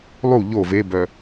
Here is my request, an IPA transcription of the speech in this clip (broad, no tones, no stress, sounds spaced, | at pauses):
lˠ u ʎ o v e b œ